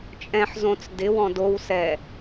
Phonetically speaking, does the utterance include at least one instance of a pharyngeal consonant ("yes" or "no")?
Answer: yes